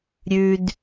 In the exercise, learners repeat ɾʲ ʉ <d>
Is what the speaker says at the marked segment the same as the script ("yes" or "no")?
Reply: yes